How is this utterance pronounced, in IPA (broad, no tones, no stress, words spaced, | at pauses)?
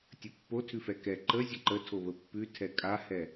tʲəpːotʰʉfɛ kɛ ǃə zʲəǃətʰo βəpːʉtʰɛ kʼahɛ